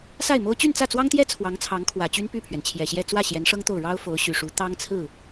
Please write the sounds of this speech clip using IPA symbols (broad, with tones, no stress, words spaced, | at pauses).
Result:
sa˥˩ɪ̯mo˥ʊ̯ t͡ɕy˥˧nt͡sä˥˩t͡swɑ˥ŋt̪jɛ˥ t͡sʰwɑ˧˥ŋt͡sʰɑ˧˥ŋ kʰwä˨˩t͡ɕy˥n py˥˩pʰɥɛ˩nt͡ɕʰjɛ˨˩ɕjɛ˥˧ t͡swä˥˩ ɕjɛ˧˥nʂɤ˥ŋt̪o˥˩ʊ̯ ɻɑ˥ʊ̯ fo˧˥ʊ̯ ɕy˨˩ʂu˧˥ t̪ɑ˥ŋt͡sʰɹ̩˥˩